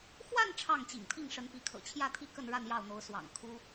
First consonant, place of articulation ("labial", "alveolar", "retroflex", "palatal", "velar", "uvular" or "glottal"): velar